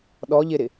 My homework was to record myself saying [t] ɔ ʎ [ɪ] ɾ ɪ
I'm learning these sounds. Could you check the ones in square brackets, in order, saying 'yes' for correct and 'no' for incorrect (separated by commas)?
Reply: no, yes